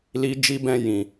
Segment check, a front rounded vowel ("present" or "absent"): absent